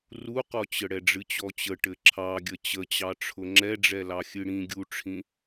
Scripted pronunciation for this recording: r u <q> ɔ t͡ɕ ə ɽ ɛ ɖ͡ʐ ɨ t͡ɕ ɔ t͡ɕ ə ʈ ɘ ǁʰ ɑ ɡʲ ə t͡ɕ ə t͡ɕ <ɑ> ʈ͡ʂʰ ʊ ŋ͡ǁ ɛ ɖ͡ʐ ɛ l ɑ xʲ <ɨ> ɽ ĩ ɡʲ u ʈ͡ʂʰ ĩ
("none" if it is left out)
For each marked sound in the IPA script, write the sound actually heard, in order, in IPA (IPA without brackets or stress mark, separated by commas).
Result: q, ɑ, ɨ